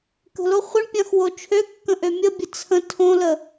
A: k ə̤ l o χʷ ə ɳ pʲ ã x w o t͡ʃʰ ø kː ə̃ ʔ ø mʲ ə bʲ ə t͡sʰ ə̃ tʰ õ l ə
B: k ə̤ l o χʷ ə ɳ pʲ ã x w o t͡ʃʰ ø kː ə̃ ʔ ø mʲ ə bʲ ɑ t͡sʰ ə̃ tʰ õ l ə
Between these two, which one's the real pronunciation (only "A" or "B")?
A